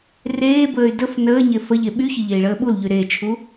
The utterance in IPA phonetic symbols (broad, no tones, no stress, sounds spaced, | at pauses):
r eː b əː y̯ d ə f n əː ɲ e f ə ʎ e ɓ y ç ə ʎ e i̯ ɭ əː ɓ u l ʎ y ɾ e t͡ʃʰ u